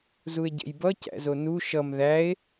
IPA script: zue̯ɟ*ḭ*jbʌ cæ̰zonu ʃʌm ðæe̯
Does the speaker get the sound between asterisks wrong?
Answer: yes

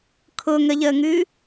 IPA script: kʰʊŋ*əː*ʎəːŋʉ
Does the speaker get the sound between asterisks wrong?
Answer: yes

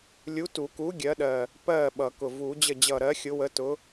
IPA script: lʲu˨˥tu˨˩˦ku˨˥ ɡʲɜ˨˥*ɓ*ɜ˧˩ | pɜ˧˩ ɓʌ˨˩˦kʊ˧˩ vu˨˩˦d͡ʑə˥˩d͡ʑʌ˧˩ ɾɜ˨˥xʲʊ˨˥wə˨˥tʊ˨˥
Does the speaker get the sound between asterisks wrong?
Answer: yes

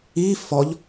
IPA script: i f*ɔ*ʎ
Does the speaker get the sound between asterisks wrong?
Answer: no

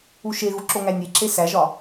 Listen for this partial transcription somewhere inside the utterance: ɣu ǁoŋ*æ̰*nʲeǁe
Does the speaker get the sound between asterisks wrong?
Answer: yes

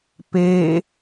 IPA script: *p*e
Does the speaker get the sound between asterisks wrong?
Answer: no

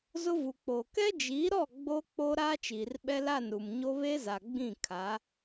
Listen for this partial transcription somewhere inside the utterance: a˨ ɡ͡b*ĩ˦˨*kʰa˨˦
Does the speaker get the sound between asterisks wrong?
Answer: no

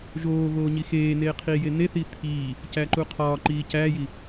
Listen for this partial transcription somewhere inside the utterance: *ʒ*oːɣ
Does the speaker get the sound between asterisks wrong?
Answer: no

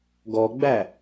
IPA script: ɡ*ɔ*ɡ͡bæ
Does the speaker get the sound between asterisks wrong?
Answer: no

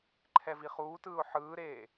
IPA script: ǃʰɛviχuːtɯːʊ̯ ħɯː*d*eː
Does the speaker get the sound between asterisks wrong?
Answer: yes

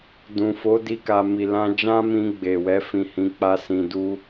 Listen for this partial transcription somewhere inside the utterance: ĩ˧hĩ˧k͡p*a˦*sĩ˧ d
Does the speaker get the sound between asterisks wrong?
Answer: no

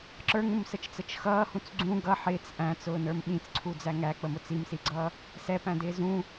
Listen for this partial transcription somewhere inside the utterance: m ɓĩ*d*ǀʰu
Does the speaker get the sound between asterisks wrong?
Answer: yes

